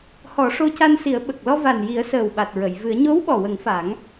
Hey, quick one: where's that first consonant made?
throat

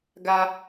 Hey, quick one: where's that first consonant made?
velum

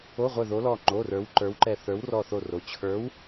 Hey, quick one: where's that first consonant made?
uvula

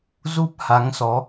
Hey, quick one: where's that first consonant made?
tongue tip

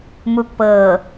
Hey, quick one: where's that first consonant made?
lips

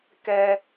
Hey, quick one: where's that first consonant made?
velum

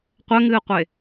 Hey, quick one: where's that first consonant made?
uvula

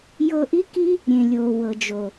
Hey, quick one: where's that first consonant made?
palate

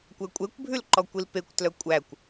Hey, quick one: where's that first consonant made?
velum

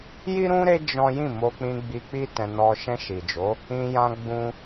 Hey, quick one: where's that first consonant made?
palate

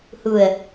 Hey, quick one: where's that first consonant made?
throat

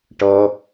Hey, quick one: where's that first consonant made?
retroflex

